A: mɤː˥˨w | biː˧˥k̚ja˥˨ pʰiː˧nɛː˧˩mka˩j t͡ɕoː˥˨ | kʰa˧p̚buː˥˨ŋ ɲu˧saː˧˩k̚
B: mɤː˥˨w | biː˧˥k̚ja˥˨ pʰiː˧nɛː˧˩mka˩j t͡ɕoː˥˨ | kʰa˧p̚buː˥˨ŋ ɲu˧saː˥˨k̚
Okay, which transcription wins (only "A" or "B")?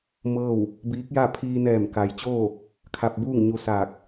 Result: A